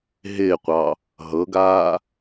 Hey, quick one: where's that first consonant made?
throat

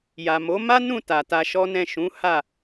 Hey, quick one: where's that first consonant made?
palate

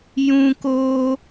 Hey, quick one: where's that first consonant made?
palate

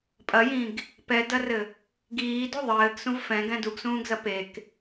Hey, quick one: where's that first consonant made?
lips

